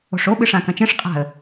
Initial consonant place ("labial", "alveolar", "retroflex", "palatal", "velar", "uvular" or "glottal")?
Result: retroflex